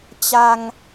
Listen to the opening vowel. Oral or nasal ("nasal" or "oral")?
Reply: oral